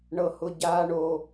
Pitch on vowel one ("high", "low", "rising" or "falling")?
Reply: high